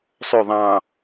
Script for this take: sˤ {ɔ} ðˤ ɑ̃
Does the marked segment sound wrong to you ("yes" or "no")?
yes